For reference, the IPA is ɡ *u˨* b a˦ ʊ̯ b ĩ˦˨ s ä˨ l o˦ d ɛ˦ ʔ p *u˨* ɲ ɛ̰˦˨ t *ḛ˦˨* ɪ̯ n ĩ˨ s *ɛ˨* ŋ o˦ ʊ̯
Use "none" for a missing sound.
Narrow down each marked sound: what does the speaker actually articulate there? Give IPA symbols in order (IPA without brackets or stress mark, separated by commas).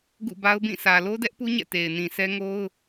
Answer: ṵ˦˨, u˦, e˨, ɛ˦